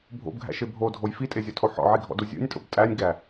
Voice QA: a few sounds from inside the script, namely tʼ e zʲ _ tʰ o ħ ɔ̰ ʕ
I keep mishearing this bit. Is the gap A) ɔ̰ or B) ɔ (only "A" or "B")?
B